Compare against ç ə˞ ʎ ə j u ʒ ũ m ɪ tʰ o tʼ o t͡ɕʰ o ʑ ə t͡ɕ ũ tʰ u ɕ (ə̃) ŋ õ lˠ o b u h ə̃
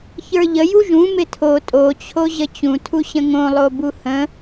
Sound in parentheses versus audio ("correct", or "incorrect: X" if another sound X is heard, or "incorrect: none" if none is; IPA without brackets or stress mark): correct